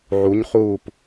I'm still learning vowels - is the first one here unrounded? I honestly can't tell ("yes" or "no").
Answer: no